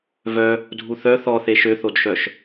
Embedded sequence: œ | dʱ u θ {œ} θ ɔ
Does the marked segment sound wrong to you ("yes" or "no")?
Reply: no